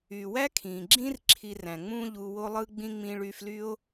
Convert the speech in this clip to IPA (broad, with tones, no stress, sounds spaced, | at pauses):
y˩ w æ˥ kʰ ĩ˩ ɡ͡ǁ ĩ˥ r ǁʰ i˧ r æ̃˩ ŋ͡m ũ˥ ʎ u˧ w o˥ lˠ ɯ˥ ɡ͡b ĩ˥ ŋ͡m ĩ˧ ɭ y˧ f l y˥ o̯